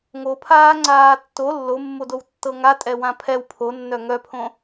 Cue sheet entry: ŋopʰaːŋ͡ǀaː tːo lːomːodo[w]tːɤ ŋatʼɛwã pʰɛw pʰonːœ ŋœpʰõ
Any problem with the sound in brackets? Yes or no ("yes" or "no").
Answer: no